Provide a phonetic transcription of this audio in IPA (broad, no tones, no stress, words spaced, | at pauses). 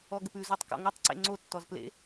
ɔɡəpʉ zotˤkɔ̰ŋotˤ ǀḛŋ͡ǀo tːɔzplḛ